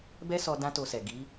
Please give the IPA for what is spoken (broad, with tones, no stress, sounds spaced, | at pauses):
b ɛ˦ s ɔ˧ d ã˦ t o˧ s ɛ˨ ɡ i˨˦